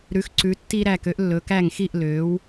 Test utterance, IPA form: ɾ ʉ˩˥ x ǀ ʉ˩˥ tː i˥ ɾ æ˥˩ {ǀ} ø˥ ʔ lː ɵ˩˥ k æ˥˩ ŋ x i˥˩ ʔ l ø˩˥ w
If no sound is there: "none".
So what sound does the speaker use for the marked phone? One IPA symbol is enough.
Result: k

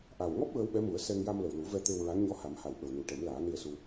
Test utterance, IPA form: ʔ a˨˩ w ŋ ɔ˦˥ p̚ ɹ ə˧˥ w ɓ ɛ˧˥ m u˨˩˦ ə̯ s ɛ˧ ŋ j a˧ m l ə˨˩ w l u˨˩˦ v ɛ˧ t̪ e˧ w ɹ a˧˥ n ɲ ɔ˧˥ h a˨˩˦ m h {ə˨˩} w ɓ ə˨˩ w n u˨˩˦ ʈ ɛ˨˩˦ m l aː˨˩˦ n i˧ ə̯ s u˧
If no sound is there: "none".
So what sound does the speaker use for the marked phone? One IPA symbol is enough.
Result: a˨˩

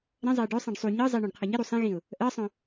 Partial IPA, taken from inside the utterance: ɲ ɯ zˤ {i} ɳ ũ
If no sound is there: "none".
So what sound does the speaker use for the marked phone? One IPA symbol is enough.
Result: i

